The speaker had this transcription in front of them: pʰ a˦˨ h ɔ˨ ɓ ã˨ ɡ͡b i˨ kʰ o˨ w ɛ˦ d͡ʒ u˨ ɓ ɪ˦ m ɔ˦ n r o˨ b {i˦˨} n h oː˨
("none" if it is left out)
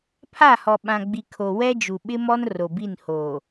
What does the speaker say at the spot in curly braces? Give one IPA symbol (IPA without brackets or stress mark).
i˦˨